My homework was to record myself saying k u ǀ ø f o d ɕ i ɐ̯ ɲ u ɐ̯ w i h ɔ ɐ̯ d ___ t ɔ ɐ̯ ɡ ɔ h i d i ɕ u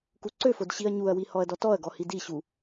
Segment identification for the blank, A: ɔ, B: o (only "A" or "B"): A